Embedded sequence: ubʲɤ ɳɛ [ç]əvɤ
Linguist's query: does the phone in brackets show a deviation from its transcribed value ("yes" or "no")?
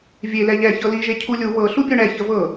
no